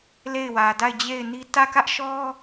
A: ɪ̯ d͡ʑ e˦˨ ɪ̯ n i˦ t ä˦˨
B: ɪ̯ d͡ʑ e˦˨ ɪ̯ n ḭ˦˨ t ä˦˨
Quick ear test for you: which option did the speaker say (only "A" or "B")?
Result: A